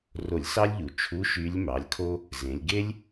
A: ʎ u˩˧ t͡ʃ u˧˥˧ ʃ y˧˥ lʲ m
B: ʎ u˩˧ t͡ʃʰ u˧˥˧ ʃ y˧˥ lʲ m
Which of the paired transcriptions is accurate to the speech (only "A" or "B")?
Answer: B